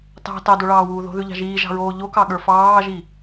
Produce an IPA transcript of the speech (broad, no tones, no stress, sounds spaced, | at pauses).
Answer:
t ɑ̤ t ɑ d o ɭ ɑː w uː ð o̤ ð ʉ ʎ ɑ̤ ʒ iː ʒ ɑ̤ ɹ oː ʎ o k ɑ ɠ ə˞ f ɑː ʒ i